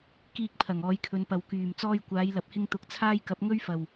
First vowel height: high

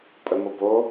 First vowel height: mid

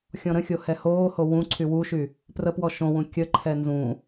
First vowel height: mid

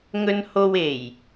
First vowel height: mid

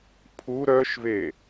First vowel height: high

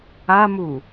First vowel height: low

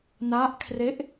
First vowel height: low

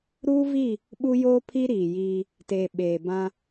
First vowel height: high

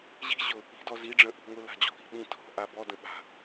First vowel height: high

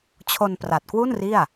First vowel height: mid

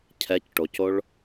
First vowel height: mid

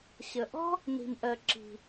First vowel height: mid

